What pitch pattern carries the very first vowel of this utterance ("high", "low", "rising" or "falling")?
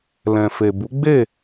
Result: low